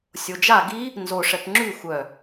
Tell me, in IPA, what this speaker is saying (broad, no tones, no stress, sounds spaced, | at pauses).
sʲ o d͡ʒ a ɡ i | n z o ʂ ɛ p ŋ͡ǁ y xʷ œ